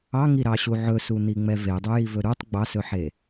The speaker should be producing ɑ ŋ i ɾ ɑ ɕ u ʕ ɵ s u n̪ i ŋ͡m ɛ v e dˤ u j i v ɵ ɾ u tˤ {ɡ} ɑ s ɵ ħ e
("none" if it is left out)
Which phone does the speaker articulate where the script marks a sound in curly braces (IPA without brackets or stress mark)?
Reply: ɡ͡b